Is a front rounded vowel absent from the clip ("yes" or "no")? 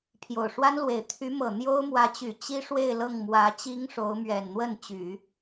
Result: no